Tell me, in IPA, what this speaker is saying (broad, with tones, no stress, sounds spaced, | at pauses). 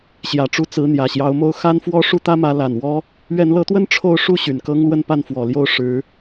ɕ j ä˨˩ ʈ͡ʂ u˥˩ t͡s ɹ̩˧˥ n̪ j ä˨˩ ɕ j ɑ˧˥ ʊ̯ m o˥ ʊ̯ x a˥ n f w ɔ˥ ʂ u˥˩ t̪ ä˥ m ä˧˥ l a˨˩ n w ɔ˥ | ɥ ɛ˧˥ n l ɤ˧˥ t̪ w ə˥ n ʈ͡ʂʰ o˥˧ ʊ̯ ʂ u˥˩ ɕ y˨˩ n k ɤ˥ ŋ l w ə˥˧ n p a˥˩ n f w ɔ˨˩ l j o˥˩ ʊ̯ ʂ ɻ̩˧˥